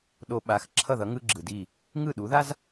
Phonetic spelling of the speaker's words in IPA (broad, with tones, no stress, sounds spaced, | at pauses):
ɗ o˧ ɓ a˩˥ x ǁʰ ʌ˥˩ ð ʌ˩˥ ŋ ɯ˥ ɡ͡ǁ ɯ˩ d i˥˩ | ŋ ɯ˥˩ ɗ u˩˥ ð a˥ z